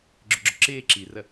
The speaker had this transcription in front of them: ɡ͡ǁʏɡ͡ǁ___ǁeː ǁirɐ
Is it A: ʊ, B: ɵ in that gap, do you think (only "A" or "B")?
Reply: A